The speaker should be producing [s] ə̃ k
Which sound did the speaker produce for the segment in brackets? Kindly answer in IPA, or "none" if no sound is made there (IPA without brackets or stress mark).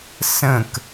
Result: s